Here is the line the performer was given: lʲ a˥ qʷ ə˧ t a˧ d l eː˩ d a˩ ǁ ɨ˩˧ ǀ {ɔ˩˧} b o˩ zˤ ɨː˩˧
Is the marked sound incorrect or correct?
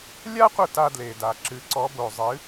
correct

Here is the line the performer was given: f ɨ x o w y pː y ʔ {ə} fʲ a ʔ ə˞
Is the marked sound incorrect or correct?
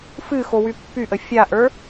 correct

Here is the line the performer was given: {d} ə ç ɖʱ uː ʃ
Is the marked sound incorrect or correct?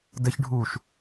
correct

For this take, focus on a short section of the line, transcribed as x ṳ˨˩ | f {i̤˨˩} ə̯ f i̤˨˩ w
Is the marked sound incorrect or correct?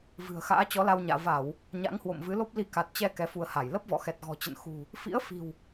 incorrect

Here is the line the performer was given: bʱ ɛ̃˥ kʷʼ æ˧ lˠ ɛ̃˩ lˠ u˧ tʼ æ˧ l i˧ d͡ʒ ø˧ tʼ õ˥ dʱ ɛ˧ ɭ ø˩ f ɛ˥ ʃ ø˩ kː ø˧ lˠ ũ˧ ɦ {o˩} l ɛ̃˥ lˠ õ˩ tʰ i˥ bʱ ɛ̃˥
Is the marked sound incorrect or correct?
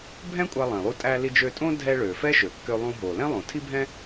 correct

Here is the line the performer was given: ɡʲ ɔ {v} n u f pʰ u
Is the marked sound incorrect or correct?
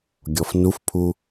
incorrect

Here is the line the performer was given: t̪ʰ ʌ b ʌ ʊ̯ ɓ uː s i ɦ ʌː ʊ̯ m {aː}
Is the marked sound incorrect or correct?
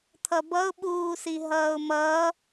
incorrect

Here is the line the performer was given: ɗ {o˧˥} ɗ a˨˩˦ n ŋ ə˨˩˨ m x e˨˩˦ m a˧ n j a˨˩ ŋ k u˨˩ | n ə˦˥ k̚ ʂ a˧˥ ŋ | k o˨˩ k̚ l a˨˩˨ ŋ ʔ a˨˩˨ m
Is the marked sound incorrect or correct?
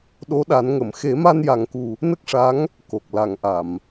correct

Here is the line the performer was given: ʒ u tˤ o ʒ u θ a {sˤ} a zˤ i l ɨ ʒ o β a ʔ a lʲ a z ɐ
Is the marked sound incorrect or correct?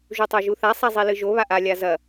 correct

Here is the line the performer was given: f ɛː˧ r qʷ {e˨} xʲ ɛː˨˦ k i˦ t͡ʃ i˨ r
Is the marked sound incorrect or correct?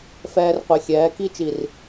incorrect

